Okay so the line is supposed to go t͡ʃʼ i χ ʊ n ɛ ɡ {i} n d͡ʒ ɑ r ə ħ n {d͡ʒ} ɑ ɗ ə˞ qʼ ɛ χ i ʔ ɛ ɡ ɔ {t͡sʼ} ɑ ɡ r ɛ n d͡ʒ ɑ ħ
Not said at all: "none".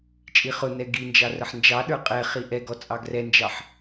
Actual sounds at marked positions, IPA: i, d͡ʒ, t͡sʼ

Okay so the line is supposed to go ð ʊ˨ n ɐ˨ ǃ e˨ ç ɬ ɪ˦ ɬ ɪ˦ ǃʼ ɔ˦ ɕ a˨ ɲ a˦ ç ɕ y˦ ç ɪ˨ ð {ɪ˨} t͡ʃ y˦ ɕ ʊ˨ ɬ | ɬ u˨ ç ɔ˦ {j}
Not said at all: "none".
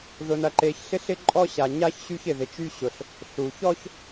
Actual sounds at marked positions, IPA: ɪ˨, ç

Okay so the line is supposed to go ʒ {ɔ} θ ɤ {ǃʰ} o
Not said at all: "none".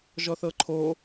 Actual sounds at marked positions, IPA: ɔ, ǃʰ

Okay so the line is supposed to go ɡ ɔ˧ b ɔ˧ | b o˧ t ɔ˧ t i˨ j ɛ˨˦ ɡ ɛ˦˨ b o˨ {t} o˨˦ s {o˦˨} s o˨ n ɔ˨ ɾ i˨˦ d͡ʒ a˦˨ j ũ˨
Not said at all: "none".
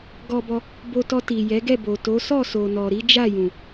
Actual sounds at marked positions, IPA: t, ɔ˦˨

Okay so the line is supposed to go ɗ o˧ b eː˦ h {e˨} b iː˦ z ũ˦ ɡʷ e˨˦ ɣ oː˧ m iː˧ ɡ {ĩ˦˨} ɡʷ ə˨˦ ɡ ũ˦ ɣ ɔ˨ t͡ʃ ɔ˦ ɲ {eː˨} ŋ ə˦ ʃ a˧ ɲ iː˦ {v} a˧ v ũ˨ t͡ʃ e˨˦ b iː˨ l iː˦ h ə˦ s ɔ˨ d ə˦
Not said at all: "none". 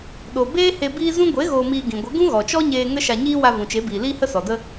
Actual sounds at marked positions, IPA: e˧, ĩ˨, eː˧, w

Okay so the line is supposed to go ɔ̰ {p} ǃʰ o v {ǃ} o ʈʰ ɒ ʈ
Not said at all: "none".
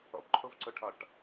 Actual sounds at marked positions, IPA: p, ǀ

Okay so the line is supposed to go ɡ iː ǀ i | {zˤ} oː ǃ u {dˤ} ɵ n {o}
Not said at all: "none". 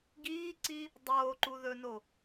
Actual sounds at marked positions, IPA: dˤ, ð, o

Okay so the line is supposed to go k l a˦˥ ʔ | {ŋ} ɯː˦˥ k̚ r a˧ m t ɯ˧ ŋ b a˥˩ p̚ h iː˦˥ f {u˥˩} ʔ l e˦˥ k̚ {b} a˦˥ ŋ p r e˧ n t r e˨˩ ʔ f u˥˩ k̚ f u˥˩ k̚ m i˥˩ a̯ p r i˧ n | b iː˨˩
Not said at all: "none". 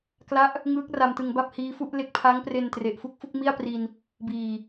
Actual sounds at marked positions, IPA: ŋ, u˥˩, pʰ

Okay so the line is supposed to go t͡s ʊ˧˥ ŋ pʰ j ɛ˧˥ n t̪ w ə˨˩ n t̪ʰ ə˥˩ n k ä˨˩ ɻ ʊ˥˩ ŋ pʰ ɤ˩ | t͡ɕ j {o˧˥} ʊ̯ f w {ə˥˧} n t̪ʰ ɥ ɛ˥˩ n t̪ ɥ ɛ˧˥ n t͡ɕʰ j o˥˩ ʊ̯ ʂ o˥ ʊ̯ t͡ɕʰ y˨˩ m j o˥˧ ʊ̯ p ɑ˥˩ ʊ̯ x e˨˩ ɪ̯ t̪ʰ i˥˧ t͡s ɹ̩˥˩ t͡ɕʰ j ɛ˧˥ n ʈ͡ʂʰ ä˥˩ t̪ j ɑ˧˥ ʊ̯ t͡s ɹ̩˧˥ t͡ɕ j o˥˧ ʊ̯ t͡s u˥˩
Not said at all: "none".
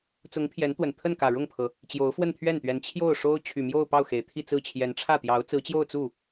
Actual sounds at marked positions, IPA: o˧˥, ə˥˧

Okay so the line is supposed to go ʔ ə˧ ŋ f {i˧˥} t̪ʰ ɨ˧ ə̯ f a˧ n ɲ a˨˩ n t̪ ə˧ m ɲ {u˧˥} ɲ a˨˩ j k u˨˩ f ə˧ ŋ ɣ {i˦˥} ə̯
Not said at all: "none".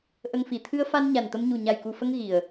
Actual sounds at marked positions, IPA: i˨˩, u˨˩, i˨˩

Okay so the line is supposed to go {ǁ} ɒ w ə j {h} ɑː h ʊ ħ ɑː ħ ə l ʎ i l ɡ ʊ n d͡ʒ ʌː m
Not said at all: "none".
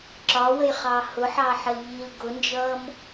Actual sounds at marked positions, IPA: ǁ, χ

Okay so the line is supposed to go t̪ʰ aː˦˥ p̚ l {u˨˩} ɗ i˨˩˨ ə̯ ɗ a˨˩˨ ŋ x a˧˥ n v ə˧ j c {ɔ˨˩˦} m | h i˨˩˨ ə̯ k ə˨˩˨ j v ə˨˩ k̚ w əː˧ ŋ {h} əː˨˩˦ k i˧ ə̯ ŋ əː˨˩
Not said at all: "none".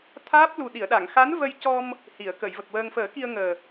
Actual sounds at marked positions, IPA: u˨˩, ɔ˧, f

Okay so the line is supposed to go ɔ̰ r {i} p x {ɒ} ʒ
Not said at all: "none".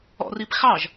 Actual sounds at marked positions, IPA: i, ɑ

